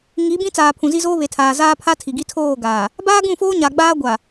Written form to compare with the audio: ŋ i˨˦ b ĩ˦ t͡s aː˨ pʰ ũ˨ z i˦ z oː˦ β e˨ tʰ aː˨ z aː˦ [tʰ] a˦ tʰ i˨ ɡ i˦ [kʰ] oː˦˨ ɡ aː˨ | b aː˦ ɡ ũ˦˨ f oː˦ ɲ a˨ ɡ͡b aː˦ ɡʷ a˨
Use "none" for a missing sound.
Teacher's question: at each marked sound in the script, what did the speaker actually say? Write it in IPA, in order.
pʰ, tʰ

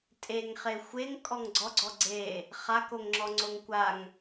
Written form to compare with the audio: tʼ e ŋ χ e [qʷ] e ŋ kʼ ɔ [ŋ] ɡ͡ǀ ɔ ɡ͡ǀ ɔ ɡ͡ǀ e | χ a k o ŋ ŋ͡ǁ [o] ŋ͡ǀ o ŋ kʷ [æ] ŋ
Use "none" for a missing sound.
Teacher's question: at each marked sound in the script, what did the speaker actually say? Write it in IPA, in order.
xʷ, ŋ, ɔ, a

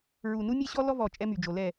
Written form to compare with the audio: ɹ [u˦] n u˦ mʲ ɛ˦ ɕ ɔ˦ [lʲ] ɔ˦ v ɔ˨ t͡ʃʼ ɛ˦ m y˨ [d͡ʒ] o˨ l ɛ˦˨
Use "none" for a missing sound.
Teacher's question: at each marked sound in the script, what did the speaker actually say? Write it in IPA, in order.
u˨, l, d͡ʒ

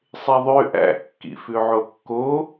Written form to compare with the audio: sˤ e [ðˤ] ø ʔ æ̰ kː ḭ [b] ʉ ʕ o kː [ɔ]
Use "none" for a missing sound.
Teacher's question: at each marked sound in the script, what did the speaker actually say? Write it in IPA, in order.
ðˤ, f, o

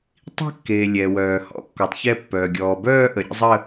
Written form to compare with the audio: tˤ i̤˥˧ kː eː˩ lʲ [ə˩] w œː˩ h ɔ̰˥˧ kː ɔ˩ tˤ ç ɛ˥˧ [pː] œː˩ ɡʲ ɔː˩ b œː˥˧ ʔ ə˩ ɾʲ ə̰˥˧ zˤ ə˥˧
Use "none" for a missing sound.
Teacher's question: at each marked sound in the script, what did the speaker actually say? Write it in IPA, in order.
ɛ˩, pː

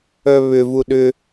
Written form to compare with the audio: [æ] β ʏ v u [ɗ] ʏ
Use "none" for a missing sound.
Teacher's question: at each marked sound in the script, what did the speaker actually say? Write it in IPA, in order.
œ, ɗ

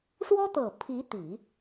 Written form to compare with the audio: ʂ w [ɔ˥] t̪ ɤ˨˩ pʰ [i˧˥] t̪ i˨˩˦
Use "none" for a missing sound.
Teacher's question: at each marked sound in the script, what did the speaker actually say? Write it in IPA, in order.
ɔ˥, i˧˥

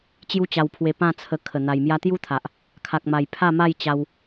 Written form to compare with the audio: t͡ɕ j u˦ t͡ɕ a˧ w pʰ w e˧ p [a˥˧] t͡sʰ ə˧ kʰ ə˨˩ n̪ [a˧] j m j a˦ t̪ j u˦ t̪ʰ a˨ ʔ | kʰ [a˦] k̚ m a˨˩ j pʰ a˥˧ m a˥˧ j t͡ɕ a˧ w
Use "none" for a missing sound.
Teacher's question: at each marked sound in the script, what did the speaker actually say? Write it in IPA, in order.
ã˥˧, a˧, a˨

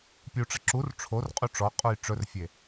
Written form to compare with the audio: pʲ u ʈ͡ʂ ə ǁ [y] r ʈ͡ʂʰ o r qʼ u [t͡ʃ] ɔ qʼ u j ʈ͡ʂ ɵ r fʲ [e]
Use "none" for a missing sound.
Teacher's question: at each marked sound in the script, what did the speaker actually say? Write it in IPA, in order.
u, ʈ͡ʂ, e

